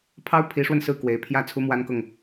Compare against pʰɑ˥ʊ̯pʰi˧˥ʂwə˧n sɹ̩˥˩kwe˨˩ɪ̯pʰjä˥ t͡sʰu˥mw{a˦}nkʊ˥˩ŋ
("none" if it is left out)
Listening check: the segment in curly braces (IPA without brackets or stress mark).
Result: a˥